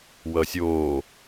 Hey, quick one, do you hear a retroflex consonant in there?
no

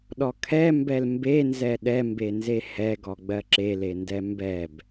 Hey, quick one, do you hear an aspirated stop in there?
yes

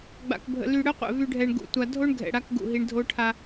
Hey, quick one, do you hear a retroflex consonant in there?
yes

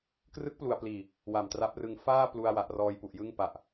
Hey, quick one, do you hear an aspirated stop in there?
no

